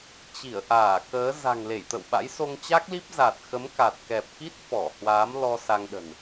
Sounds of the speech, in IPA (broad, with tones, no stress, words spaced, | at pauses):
t͡ɕi˧˩ə̯ʔaː˧˩kəː˨˦ za̤˨˩ŋle˧˩jt̪ə̰˧˨wɓa̰˧˥j so˧ŋt͡ɕa˦˥k̚li˦˥p̚ za˨˩t̚xə˨˦mka˨˩t̚ kɛ˨˩p̚ki˦˥t̚ fɔ˧˩hwaː˨˦mlɔ˧ sa˧ŋɗə̤˨˩n